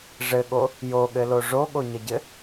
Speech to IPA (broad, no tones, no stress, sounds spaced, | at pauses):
ʐ ɘ ɠ o | j o ɠ ɘ l o ʐ o ɠ o ɲ ʌ ɟ ɘ